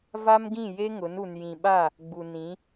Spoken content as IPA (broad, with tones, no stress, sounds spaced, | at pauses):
v a˦ m ɡ ĩ˦˨ j e˦ ŋ ʊ˨˦ n u˨ n j ĩ˨ ɓ a˦˨ | ɡ͡b u˨ n ĩ˨˦